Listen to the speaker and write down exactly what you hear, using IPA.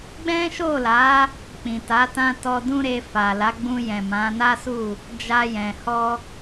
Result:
ɡ͡b ɛ̃˦ ʃ o˦˨ l a˨˦ | k͡p ĩ˨ t a˨˦ t ã˧ t ɔ˧ d ũ˦ ɾ e˧ f a˨ l a˨˦ ɡ͡b ũ˧ j ɛ̃˨ m ã˨˦ n a˦ s u˦˨ | d͡ʒ a˧ j ɛ̃˨ h ɔ˧

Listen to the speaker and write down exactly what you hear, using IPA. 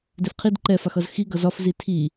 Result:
d e f qʰ i d ǃ ɛ f a x ʌ z x i ɡ ʌ z ɒ f z i tʰ i

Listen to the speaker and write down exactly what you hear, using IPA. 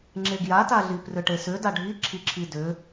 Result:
ŋ͡ǁ e ɡ j a t a ɮ i p r ʏ ʈ e s ʏ d a ɖʱ i ǁʰ i ǁʰ i d ʏ

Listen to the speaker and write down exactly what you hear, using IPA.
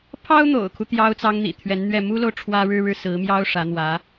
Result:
pʰ ɑ˥ ʊ̯ n̪ o̰˨˩ ʊ̯ kʰ u˦ t̪ j ɑ˥ ʊ̯ t͡s ɑ˥ ŋ n̪ ḭ˨˩ t̪ʰ ɥ ɛ˧˥ n n̪ ɥ ɛ˥˩ m u˥ l o˨ ʊ̯ ʈ͡ʂʰ w ä˥ ɻ ɻ̩˥ ɻ ɻ̩˥˩ s ɹ̩˧˥ m j ɑ˥ ʊ̯ ʂ ä˧˥ n̪ w ä˧˥

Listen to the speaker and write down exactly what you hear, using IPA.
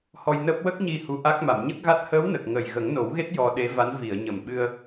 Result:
h ɔ˧ j n əː˦˥ p̚ w ə˦˥ k̚ ɲ i˧ h u˧˥ ʔ a˦˥ k̚ m a˨˩˨ m ɲ ə˦˥ k̚ ɣ a˦˥ t̚ h əː˧˥ w n ə˨˩ k̚ ŋ ə˨˩ j ɣ ə˨˩˦ ŋ n o˨˩˦ w ɣ e˦˥ t̚ j ɔ˧ ɗ e˧˥ v a˧˥ n v i˨˩˨ ə̯ ɲ ə˨˩ m ɓ ɨ˧ ə̯

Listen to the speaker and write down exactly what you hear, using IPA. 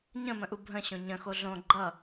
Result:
ɲ ə̃ m ə̃ ʔ u bʱ ə̃ ɕ õ ɲ ə̃ x o ɮ õ ɡ͡ǃ ʌ

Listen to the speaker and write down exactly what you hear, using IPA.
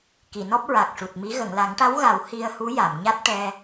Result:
k i˨˩˨ n ɔ˦˥ p̚ ɹ a˨˩ k̚ ʂ u˨˩ t̚ m i˧˥ ɣ ə˨˩˨ ŋ l a˨˩˦ ŋ ʈ a˧˥ w ɣ a˨˩˦ w h i˧ ə̯ h u˧˥ j a˨˩˨ m ɲ a˦˥ t̚ ʈ ɛ˧

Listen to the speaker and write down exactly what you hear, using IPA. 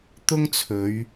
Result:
t̪ ʊ˥ ŋ t͡sʰ ɵ˨˧ ɥ

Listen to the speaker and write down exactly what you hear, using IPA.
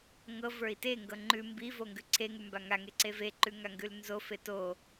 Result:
ŋ ɤ v ə˞ i̯ t e ŋ ɡ ɤ ŋ͡ǃ ʉ m b i v o ŋ ɡ ʉ ǀʰ e ŋ ʉ m b a ŋ a ŋ e ǀ e v e ǃ ʉ ŋ a ŋ ɡ ʉ l n z o f e t o

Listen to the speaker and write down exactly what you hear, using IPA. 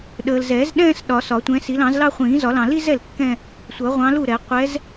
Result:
ɗ əː˨ l z ɛː˨˩˦ z ɗ ɛ̃ː˥˧ s ɗ ɒ˨˩˦ s ɒ˨˩˦ tʷ ɛ̃ː˨˦ s i˨˦ l ɑ̃˨˩˦ z l ɑ˥˧ χʷ ĩː˨˩˦ z ɒ˨˩˦ l ɑ̃˨ l i˥˧ z ɛ˥˩ l kː ɛ̃˥˧ | sʷ ʌ˨˩˦ ʁʷ ɑ̃˨˦ l u˥˩ ɾ ɛ˨˩˦ qʷ ɛ˨˦ z

